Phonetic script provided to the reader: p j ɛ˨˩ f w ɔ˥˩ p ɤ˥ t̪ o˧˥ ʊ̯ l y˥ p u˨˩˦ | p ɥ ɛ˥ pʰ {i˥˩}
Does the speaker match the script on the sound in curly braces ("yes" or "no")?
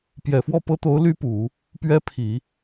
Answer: no